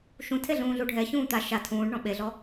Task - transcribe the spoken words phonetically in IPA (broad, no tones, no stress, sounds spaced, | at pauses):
ʃ ũ tʰ e ɮ ũː ɮ u ɖʱ ɛ ç ũː t̪ a ʃ a tʰ ũː ɖ ɳ ɔ̃ ɓ e ɮ ɔ